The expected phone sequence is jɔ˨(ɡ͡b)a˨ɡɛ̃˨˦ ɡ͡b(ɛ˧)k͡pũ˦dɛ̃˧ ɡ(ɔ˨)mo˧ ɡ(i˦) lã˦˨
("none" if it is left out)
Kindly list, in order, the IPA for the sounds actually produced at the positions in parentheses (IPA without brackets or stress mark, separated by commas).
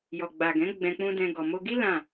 ɡ͡b, ɛ̃˧, ɔ˨, i˦